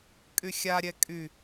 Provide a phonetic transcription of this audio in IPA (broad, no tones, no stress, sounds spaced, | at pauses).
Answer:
kʼ y xʲ a ɾʲ ɛ kʼ y